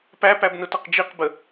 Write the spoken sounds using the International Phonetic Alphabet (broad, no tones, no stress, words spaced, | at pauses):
pæpæbnʊtʌq d͡ʒiqbə